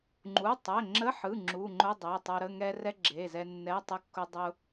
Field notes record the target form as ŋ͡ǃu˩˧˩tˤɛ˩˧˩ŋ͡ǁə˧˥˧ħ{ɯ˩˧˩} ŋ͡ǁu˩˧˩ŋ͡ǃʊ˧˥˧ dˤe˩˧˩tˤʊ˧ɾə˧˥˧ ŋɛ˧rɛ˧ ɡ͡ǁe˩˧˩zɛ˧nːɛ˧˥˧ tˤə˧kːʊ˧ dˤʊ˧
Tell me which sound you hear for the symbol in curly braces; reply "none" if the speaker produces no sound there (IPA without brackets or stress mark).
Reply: ɯ˩˧˩